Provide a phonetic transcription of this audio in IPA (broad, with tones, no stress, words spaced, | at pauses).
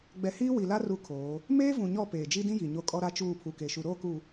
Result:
ɡ͡bɛ˨hiː˦wi˨ la˦ ru˦kʰoː˨˦ | meː˦vũ˨ɲɔ˦˨ peː˨d͡ʒi˦dĩ˦ji˨ ɲo˦kʼɔ˦ ɾa˦t͡ʃuː˦˨ pʰu˨ke˨ ʃu˨ɾoː˦˨ku˨